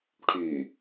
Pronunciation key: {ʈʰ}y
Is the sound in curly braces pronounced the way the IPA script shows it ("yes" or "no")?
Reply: yes